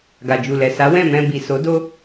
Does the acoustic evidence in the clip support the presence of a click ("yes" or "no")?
no